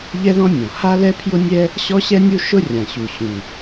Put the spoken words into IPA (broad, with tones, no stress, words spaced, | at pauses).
ʎɛ˦ðɔ̃˦ nʲɔ̃˩ ha˦lɛ˦pʰjʊ˦nʲɛ˦ | ɕɔ˦ɕɛ˦ nʲu˦ʃʊ˦ rʲã˩ɕu˩ ɕũ˩